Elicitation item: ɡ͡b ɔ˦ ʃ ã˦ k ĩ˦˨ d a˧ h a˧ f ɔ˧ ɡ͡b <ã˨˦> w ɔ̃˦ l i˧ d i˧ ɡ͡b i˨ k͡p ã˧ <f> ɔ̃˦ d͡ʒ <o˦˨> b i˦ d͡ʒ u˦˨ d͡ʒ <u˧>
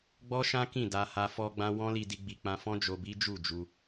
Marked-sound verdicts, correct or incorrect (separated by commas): incorrect, correct, incorrect, correct